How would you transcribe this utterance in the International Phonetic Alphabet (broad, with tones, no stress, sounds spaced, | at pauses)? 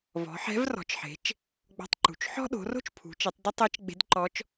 v ɔ̤˩˧ ħ ɛ̤˧˥ v r ɔ̤˩˧ t͡ʃ ħ e̤˩˧ t͡ʃ | ɡ͡b ɔ̤˧ tˤ ǃ ṳ˩ t͡ʃ ħ ɔ̤˥ ɗ o̤˩˧ r o̤˥ t͡ʃ pʰ ṳ˩˧ t͡ʃ e˩˧ tˤ d ɪ˥ tˤ ɛ˧˥ t͡ʃ ɡ͡b e̤˧˥ d ǃ ɔ˧˥ t͡ʃ